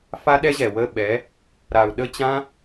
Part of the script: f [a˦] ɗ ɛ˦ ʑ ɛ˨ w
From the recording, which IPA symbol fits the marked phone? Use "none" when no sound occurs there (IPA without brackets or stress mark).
a˦